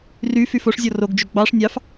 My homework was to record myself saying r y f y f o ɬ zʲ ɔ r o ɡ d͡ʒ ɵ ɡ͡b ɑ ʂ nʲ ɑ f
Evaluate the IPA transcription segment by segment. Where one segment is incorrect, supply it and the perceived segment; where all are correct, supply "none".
ɬ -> ʂ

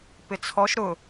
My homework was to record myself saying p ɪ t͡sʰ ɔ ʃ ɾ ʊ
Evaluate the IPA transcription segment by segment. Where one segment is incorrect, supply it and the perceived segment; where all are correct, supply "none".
none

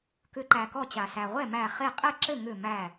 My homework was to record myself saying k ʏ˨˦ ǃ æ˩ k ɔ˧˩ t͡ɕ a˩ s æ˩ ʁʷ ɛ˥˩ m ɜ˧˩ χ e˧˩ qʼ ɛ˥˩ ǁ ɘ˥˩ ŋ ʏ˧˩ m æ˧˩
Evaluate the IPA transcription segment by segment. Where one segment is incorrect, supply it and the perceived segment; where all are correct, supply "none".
ɜ˧˩ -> æ˧˩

